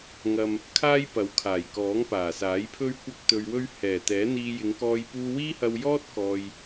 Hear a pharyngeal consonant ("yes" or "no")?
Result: no